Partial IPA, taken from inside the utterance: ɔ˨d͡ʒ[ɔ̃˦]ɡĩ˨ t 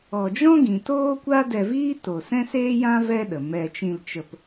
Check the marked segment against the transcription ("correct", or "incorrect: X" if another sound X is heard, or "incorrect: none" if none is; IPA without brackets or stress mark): correct